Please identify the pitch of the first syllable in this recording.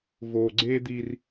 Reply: low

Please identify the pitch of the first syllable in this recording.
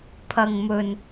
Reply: low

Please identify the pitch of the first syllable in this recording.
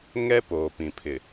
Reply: high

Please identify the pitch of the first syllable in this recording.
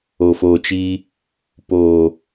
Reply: low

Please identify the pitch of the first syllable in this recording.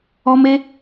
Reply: high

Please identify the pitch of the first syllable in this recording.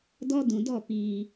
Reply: high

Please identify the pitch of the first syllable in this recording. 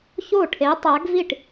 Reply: falling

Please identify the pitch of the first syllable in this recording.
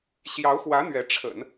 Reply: rising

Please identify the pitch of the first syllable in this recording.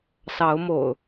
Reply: rising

